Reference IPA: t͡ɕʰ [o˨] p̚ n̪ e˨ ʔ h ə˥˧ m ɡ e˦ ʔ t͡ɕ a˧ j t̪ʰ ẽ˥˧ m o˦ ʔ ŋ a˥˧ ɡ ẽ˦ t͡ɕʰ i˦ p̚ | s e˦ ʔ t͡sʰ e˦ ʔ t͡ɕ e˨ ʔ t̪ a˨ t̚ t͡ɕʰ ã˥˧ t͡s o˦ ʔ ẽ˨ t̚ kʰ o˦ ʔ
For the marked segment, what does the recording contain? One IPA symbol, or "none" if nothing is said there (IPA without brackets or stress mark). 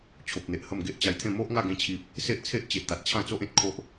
o˨